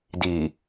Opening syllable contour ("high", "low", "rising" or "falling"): low